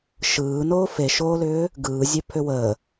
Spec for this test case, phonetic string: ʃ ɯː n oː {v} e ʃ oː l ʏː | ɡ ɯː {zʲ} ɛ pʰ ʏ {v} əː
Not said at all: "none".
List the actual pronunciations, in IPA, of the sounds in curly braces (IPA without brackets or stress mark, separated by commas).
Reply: f, zʲ, w